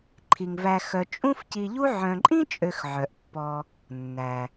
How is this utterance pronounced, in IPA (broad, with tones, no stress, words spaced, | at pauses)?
ǃʰi˩ŋvæ˨ xœ˨ t͡ʃʼũ˦fci˨ʎu˦ ʕœ̃˨ǃʼĩ˥t͡ʃʼø˨x ʕœ˩ʔpːɔ˨ | nːæ˩